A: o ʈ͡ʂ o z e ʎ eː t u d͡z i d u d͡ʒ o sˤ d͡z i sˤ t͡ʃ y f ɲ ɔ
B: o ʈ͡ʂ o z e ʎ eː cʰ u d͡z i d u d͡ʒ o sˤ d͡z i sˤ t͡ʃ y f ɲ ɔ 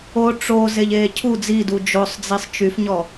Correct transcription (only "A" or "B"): B